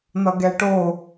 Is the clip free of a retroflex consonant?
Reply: no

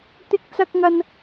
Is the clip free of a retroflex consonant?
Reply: yes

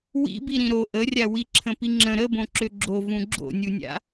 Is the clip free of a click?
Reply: no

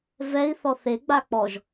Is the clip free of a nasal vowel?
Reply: yes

